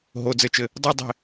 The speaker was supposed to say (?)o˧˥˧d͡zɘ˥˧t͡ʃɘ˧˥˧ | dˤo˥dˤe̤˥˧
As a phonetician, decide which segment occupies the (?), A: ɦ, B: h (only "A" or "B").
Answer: A